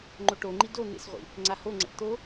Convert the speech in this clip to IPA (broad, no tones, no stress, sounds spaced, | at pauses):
ŋ͡ǃ o ʈ o ŋ͡ǃ i d o n̪ ḛ s ʁʷ ḭ | ŋ͡ǀ a h o ŋ͡ǀ ə̰ ʈ t̪ o